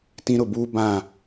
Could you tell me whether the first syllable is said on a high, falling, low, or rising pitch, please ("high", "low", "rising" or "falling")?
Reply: high